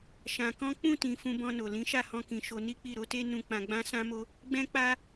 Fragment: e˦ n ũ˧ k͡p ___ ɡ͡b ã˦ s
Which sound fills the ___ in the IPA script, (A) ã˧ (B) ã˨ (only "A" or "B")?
A